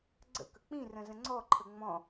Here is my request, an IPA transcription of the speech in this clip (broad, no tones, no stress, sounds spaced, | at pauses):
ɡ͡ǀ ə̰ k ə k͡p ĩ r ə̃ z ə̃ ŋ͡ǀ ɔ ǃʰ ə ŋ͡m ɔ̃